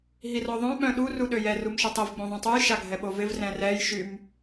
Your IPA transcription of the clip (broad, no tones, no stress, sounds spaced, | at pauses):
ɦ i r ɔ ðˤ œ̃ ɓ œ̃ ɗ u r u ɗ ø j ɛ r u m ʃ i tˤ i v ɡ͡b õ ðˤ ũ tˤ u j ʃ a ɡʱ ɛ ɓ o v ɪ v r ɛ̃ r ɛ j ʃ y m